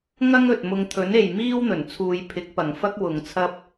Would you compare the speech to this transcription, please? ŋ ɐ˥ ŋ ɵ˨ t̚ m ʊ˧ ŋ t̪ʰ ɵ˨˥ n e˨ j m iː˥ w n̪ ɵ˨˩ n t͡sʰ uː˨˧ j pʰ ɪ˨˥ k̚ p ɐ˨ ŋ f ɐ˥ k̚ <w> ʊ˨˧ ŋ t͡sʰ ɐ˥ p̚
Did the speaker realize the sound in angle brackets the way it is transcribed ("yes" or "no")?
yes